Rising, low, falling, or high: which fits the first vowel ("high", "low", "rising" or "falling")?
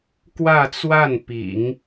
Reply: falling